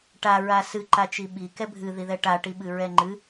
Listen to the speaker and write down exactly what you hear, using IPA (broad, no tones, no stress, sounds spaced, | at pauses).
ʈ a ɹ a s ɨ ǃ a t͡ʃ i ɓ i k ɛ bʱ ɨ ð i ð ɛ ʈ a ʈ i ɓ ɨ ɹ ɛ ŋ͡ǃ ɨ